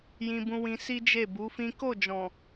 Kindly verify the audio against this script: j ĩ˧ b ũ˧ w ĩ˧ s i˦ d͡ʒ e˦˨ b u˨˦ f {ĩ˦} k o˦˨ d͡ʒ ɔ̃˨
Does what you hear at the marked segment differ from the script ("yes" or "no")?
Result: no